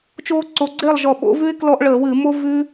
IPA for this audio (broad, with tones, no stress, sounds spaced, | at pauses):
t͡ʃ oː˦ ǀ o˨˦ ɡ͡ǀ eː˥˨ lˠ ʒ ɔ˧˩ ɓ o̰˨˦ v ʉ˦ ɪ̯ k l ɔ˦ ʔ ɭ əː˧˩˧ w ɨ˧˩˧ m o˦ v ʉ˦